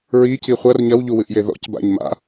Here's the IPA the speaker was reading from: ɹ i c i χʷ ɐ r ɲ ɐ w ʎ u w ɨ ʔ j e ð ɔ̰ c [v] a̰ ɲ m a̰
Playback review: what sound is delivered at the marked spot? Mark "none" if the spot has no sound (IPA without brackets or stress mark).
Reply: b